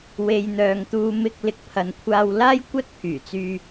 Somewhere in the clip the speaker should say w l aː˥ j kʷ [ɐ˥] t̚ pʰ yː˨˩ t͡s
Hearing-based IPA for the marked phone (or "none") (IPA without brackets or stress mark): ɐ˥